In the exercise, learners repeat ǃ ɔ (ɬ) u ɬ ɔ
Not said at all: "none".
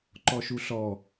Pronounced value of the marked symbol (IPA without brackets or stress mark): ʃ